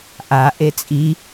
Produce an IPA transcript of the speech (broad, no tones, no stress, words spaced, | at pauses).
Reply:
ʔa ʔet͡sʼi